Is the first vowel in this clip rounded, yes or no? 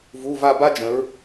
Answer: yes